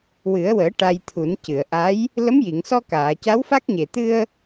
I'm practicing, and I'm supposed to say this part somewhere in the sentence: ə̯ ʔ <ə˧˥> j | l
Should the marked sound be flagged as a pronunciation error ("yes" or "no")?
yes